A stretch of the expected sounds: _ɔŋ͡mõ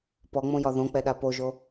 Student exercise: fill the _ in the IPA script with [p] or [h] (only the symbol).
p